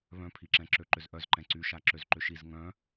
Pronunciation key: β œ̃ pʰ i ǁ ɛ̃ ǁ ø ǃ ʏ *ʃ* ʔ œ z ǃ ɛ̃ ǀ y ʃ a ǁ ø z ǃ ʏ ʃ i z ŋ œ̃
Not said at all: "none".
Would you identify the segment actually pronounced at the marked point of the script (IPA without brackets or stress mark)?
z